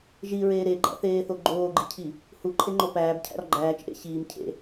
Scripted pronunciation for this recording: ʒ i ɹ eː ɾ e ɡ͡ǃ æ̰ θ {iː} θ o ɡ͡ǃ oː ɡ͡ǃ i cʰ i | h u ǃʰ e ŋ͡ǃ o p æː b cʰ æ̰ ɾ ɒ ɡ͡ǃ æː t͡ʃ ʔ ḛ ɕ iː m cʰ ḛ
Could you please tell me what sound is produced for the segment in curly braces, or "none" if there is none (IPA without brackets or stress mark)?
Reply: eː